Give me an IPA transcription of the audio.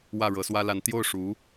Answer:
w ä˥˩ ɻ ɤ˧˥ s w ä˥ l a˧˥ n t̪ j o˥˩ ʊ̯ ʂ u˧˥

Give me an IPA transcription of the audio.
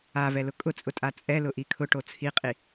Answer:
a v ɛ l ʊ kʼ ʊ t͡sʼ ʊ tʼ a t͡sʼ ɛ l ʊ ʔ i kʰ ʊ ʈ o t͡sʰ i qʼ i

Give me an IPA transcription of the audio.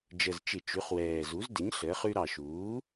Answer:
d͡ʒ ə˨˩ z t͡ʃ ɪ˧˩˧ t͡ʃ ʉ˩˥ χ w ɛː˨˩ z u˩˥ z d ɪ˩˥ ɲ ɬ əː˩˥ χ ʉ˦ ɾ ɑ˨˩ ʃ uː˩˥

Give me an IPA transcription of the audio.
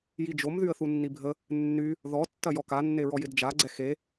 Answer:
j i d͡ʒ o m ð y ə̯ θ u nː i bʱ ə | nː y | ð ɔ tː ɐ j ɔ k a nː e ɹ ɔ j ɪ d d͡ʒ a ɡ͡ǀ ɛ x e

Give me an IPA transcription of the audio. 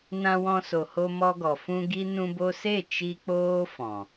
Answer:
n ã˧ w ɔ̃˧ s o˨ h o˧ m ɔ˧ ɡ ɔ˨ f ũ˧ ɡ i˦ n ũ˧ b o˧ s e˦˨ t͡ʃ i˦ k͡p oː˦ f ɔ̃˨

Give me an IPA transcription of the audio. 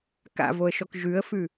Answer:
k a̰ v o ə̯ ʃ ɔ k ʒ ʉ ə̯ f ʉ

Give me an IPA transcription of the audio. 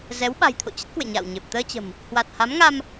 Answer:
z ɛ˨˦ w ɓ a̤˨˩ j t̪ʰ o̰˧˨ t͡ɕ ə˦˥ t̚ k w ḛ˧˨ ɲ a̰ː˧˨ w ɲ e˨˩ p̚ t̪ əː˧ t͡ɕ ə̤˨˩ m | h w a˨˩ t̚ h a˨˦ m ŋ a˧ m

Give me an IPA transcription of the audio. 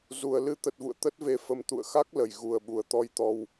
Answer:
z u˨˩ ə̯ l ɨ˨˦ t̪ ə˨˩ t̚ v ṵ˧˨ ə̯ t̪ ə˦˥ t̚ v e˧ f ə˨˦ m t̪ ṵ˧˨ ə̯ x a˦˥ k̚ l ə˧˩ j ɣ u˨˩ ə̯ ɓ u˨˩ ə̯ t̪ ɔ˧ j t̪ ɔ˧ w

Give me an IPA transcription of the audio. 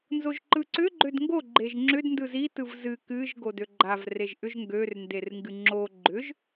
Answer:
n z o ʒ ǃ ɯ ǀ ʏ ɡ͡ǃ ø d ŋ ɡ o ɡ͡ǃ e ʒ ŋ͡ǁ ʏ d n d ɯ z i t ɯ v z ɨ k ɨ ʒ ɡ o d ø ɡ͡ǃ a v r e ʒ ʔ ʏ ʒ ŋ ɡ ø r n d e r ŋ ɡ ɨ ŋ͡ǁ o ɡ͡ǃ ʏ ʒ

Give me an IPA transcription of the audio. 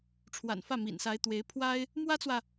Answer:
ʈ͡ʂʰ w a̰˨˩ n f ä˥˩ m ḭ˨˩ n s a˧˥ ɪ̯ t̪ w e˧˥ ɪ̯ pʰ w a˥ ɪ̯ | m w ä˥ t͡s w ä˨

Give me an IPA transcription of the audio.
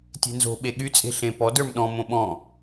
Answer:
tʲ e̤ n z o̤ ɓ e ɠ y t͡sʼ e̤ ɬ ẽ p ɔ d ə˞ m ɗ ɔ̃ m õ ɓ ɔ̃

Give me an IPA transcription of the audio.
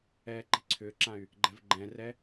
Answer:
ɛː ǃ i̤ ǀʰ ʏː ǁ ã y̯ | ɡ͡ǃ ɛ̤ v ɡ͡ǃ ɛ̃ r ɛ

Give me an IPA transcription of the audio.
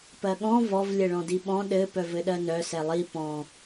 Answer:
p ɜ ɠ ɔ̃ v ɔ v lʲ ɘ ɭ ɔ̃ d i ɓ ɔ̃ ɗ ɘ p œ v ɘ ɗ ɜ n œ s ɛ lˠ i p ɔ̃

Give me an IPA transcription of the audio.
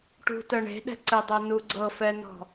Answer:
ʈ ṳ t ɜ ɳ e̤ ɗ ɛ̤ ǀ ɘ dˤ ɤ n u ɡ͡ǀ ɤ f ɛ n ɔ̤

